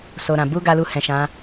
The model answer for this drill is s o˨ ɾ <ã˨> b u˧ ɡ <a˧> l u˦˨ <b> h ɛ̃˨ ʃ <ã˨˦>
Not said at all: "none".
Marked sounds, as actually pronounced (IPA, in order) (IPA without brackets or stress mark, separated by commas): ã˨, a˦, none, ã˨˦